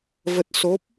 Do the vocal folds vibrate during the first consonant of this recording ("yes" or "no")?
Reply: yes